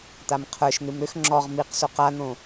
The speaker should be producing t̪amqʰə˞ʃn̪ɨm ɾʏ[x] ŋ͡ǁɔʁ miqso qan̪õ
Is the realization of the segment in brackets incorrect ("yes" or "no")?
no